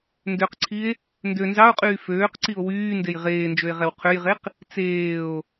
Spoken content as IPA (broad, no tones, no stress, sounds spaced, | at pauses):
n d ø q ǀʰ i e̯ | n d ø n z ɑ o̯ qʼ yː f øː q ǀ i o̯ w yː n d e j ʁ eː n d͡ʒ ø e̯ ʁ ɛ w qʰ ø j ʁ e q | t͡s eː o̯